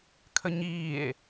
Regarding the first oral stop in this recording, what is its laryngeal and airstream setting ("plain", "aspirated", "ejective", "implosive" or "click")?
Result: aspirated